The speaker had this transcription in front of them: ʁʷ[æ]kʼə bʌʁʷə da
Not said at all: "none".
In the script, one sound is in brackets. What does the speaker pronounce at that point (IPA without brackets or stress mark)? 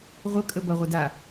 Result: ə